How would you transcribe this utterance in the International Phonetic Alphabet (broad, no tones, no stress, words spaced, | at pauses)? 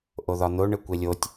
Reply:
ʔoðɒn̪o ɳɘkʷelʲotʲ